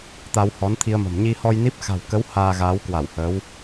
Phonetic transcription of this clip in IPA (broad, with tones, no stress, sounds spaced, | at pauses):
t̪ a˧ w h ɔ˨˦ n t̪ʰ i˧ ə̯ m ə̤˨˩ m ɲ i˧ h ɔ˧ j n i˦˥ p̚ x a̤˨˩ w k ə˨˦ w h aː˧ ɣ aː˨˦ w k w a˧˩ w h əː˨˦ w